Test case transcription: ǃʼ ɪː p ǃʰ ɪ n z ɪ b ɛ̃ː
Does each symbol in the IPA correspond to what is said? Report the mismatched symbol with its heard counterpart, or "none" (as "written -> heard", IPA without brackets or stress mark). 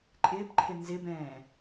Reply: none